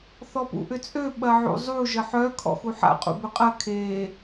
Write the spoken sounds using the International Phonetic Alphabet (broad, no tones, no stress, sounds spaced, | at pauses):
θ ɔ p ṵ ʔ ʏ t͡sʼ ø ɓ ɐ ʕ ṵ zˤ u ʒ ə ħ œ kʰ ɔ̰ x u ħ a̰ qʼ ṵ b ʏ qʼ ɐ kʰ e